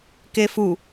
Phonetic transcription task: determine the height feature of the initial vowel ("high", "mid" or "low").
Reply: mid